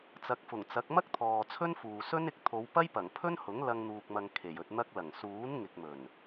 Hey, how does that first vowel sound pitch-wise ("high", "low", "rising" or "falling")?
low